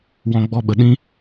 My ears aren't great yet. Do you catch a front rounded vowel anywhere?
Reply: no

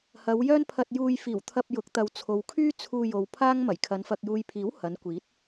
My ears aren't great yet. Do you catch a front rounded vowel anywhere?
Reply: yes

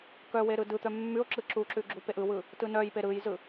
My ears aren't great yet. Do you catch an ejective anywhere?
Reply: no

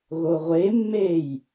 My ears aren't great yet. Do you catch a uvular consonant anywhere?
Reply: yes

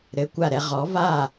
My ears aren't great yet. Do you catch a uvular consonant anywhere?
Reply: yes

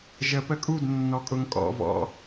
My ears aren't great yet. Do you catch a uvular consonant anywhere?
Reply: no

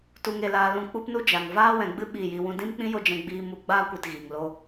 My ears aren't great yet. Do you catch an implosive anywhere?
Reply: yes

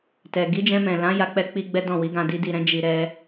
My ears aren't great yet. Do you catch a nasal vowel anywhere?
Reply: yes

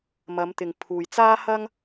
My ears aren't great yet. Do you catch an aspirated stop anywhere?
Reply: yes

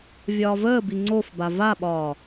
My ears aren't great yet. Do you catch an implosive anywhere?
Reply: yes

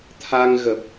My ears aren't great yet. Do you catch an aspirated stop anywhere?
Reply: yes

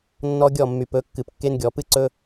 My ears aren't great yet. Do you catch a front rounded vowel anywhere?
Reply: yes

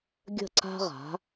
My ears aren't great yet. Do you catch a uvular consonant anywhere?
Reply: yes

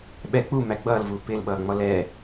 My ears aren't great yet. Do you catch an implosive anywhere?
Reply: yes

